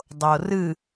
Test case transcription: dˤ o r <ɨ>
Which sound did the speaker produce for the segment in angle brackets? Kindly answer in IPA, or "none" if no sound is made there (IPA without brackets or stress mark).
ɨ